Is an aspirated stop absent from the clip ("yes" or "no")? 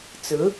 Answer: yes